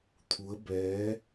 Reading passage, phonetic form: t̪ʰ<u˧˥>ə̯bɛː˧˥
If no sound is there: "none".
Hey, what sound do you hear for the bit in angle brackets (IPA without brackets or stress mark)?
u˧˥